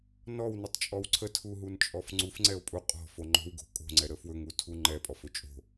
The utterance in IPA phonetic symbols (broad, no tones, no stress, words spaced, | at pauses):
nɔwnətˤt͡ʃʼɔw ǀʰətʰuɦunt͡ʃʼɔf ŋ͡ǀufŋ͡ǀɛo̯ pʼu qʼɔ̤fo ŋ͡ǃo̤wɡo̤ kʼo̤ŋ͡ǀɛɾə fwɵŋutʰu ŋ͡ǃɛpʼɔfɵ t͡ʃʼo̤